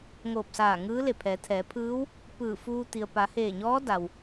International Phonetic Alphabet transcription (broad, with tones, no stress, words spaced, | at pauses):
ŋoː˧˩p̚saː˧˩ ŋɯː˧˥le˧˩ pʰɛː˩˧t̪ʰɛː˩˧ pʰɯː˧˥w | pɯː˧˩fuː˧ t̪i˩ə̯ pa˩˧heː˧˩ɲɔː˧˥ da˩w